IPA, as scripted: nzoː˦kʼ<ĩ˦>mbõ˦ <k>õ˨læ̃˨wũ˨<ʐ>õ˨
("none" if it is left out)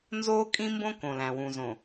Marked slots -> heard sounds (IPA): ĩ˦, k, z

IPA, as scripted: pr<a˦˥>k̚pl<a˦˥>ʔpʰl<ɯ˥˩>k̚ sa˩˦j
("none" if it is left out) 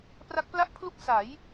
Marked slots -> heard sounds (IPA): a˦˥, a˥˩, u˥˩

